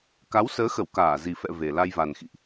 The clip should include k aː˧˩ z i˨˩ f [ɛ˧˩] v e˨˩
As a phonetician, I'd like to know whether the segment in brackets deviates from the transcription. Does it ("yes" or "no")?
yes